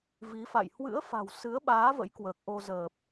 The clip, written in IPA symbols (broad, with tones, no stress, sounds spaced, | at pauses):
v i˨˦ f a̰˧˨ j h w ɨ̰˧˥ ə̯ f a̤˨˩ w s ɨ˨˦ ə̯ ɓ aː˨˦ v ə̰˧˥ j k w əː˨˩ k̚ ʔ o˧ z əː˨˩ p̚